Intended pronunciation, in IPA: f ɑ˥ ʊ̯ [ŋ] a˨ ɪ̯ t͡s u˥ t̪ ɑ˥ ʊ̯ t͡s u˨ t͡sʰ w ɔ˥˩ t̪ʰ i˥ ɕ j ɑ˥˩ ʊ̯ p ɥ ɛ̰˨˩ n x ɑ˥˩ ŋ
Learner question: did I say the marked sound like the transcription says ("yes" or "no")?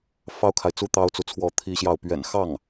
no